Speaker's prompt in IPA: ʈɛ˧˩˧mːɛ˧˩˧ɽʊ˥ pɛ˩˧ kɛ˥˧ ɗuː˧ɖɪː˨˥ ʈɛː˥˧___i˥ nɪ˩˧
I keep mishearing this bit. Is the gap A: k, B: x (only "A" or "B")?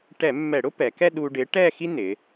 B